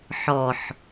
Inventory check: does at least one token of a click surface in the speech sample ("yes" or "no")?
no